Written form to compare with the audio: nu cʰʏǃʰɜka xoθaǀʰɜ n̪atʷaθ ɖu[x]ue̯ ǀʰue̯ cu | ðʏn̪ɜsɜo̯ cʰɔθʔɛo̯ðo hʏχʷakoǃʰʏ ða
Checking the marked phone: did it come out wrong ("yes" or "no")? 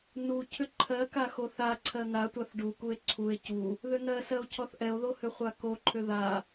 yes